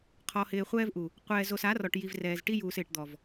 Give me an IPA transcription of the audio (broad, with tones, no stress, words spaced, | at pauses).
qʰɔ˨hɪː˨χʷɛː˦vʔu˨ | qʷɛː˨zo˨s a˨˦rɔ˨ʈ ji˨vrɛː˨z ʈi˦juː˨sɪː˨ʈd̪ɔ˨v